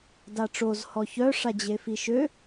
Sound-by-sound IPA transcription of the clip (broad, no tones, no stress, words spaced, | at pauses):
daʈ͡ʂoz hɔçœ ʂad͡ʑefiʃø